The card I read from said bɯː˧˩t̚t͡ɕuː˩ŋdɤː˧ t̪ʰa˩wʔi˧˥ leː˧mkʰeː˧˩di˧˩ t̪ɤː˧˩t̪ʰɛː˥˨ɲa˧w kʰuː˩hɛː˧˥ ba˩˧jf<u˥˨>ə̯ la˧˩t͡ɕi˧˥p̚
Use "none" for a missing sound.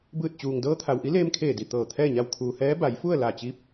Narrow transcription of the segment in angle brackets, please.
u˥˨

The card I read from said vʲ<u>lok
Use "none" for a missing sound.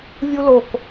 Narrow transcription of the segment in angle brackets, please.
u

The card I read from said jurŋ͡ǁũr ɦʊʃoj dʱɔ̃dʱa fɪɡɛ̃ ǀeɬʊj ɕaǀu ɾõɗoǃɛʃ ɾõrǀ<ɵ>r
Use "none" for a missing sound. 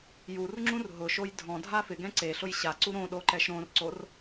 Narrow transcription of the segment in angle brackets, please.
o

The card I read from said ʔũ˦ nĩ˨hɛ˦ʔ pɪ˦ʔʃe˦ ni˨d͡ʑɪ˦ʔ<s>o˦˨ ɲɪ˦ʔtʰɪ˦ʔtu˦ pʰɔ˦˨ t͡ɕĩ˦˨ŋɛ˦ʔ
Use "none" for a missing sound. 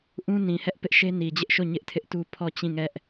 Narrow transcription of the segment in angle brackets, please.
ʃ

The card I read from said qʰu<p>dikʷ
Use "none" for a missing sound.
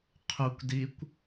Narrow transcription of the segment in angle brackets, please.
kʷ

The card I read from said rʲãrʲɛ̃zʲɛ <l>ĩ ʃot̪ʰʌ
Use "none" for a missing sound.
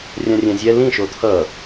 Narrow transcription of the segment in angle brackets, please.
l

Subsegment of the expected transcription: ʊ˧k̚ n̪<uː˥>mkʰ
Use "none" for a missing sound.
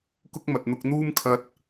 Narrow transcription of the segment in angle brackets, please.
uː˥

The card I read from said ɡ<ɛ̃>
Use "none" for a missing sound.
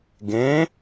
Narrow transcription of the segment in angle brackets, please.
ẽ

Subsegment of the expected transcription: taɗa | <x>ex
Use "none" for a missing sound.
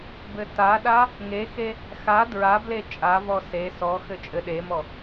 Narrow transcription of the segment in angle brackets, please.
ŋ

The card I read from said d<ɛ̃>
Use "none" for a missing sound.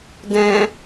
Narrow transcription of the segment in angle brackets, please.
ɛ̃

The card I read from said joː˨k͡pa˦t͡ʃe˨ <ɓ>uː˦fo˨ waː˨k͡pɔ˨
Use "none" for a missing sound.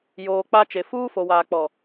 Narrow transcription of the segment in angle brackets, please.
f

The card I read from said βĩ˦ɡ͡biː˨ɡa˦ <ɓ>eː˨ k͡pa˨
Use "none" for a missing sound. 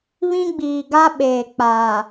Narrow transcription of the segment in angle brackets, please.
ɓ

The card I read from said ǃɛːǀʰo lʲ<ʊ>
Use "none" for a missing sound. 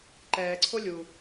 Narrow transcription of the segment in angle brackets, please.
u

